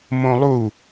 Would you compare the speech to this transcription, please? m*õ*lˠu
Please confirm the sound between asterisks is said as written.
yes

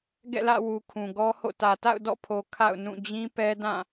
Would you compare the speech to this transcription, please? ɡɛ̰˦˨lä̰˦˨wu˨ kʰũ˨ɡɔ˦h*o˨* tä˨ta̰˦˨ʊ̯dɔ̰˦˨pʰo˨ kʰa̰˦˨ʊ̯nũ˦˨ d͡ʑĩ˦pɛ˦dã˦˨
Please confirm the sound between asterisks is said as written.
no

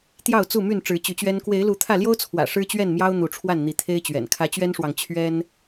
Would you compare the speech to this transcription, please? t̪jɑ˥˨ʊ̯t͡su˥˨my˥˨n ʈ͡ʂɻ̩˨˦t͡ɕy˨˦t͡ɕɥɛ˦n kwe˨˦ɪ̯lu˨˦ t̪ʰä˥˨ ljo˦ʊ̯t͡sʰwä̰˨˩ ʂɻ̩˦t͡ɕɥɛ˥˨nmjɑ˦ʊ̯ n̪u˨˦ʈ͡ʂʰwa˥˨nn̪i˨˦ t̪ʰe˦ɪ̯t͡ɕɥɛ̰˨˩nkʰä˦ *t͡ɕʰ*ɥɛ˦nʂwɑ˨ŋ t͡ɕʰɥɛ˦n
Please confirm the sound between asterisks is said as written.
no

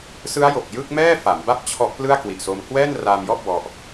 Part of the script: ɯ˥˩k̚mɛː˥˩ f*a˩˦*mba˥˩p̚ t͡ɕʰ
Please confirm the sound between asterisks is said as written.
yes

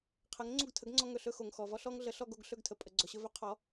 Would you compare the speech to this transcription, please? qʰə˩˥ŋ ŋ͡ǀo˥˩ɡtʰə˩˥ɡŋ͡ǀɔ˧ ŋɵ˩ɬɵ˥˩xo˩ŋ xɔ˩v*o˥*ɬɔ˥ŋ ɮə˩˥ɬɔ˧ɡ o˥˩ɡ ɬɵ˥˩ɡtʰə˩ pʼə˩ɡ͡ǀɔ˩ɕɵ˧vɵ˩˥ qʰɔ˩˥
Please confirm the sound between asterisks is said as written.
no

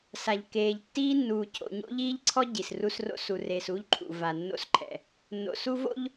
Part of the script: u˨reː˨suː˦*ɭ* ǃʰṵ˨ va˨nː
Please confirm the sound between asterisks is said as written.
no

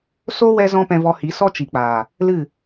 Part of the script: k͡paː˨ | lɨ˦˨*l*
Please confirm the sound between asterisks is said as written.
no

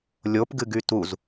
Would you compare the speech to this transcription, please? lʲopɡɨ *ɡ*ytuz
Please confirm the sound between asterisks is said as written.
yes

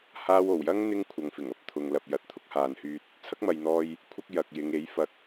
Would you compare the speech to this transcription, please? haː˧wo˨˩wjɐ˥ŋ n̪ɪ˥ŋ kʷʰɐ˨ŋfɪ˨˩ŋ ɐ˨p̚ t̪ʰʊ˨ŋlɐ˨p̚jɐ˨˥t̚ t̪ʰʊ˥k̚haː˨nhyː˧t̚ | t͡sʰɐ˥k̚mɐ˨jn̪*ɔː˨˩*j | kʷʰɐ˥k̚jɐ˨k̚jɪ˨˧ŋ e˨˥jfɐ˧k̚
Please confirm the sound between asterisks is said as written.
no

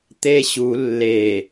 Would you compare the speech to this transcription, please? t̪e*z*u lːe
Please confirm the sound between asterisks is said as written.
no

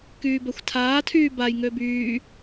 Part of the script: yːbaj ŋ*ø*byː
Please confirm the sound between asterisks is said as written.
yes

